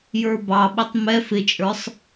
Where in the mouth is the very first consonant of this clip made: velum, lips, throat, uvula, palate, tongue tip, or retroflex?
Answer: palate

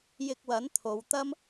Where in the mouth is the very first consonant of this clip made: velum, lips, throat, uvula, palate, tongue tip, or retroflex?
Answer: palate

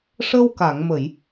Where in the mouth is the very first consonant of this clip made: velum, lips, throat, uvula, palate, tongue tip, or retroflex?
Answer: retroflex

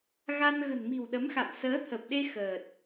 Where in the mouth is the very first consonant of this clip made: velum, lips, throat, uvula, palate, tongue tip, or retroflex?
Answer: velum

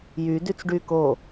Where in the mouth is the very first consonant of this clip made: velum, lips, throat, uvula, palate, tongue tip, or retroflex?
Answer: palate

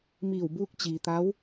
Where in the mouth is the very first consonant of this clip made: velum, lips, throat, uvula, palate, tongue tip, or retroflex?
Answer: lips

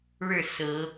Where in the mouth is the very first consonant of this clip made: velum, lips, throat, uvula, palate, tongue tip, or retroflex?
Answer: retroflex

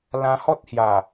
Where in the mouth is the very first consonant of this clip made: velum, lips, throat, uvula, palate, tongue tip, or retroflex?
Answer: tongue tip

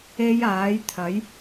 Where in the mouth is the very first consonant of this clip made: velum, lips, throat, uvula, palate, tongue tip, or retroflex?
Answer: palate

